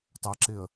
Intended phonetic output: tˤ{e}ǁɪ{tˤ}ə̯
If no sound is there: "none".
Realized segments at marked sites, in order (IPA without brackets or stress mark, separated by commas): ɛ, none